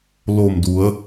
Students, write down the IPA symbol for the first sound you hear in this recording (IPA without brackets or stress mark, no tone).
l